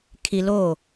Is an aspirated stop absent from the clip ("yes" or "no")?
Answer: no